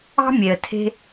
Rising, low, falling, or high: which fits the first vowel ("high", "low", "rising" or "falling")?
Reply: high